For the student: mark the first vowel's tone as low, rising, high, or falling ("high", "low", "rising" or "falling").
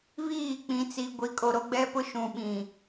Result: falling